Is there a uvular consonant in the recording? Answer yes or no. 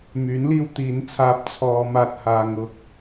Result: no